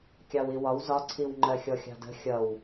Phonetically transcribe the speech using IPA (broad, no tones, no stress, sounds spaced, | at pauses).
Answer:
kʲ ɑ w i w ɒ w z ɒ ǀʰ i w ŋ͡ǃ ɜ xʲ ɔ xʲ ɑ̤ d ə̤ xʲ ʌ w